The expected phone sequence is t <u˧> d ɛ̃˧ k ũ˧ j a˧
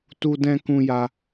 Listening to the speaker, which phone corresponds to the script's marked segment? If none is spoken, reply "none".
u˧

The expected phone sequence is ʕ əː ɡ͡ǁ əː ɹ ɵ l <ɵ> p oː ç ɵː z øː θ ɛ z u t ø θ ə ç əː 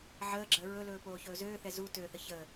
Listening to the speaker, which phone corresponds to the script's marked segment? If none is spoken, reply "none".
ɵː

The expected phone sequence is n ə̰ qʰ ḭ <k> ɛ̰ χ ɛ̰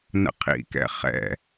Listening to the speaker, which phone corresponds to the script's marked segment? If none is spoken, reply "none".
k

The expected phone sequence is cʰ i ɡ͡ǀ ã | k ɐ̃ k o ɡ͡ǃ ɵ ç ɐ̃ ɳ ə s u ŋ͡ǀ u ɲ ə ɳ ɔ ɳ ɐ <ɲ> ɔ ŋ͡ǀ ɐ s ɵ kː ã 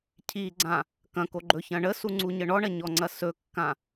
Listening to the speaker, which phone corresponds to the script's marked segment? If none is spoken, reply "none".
ɲ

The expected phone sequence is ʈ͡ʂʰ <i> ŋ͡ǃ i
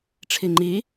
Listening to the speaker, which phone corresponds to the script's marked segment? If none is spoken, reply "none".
i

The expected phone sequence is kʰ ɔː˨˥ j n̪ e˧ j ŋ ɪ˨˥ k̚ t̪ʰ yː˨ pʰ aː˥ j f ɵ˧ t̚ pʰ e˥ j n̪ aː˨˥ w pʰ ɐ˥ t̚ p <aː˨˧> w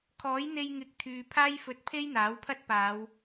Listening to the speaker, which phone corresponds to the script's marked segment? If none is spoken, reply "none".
aː˨˧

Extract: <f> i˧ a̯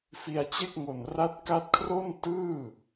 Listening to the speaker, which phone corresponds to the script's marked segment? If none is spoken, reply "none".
f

